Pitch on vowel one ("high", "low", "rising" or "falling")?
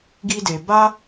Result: high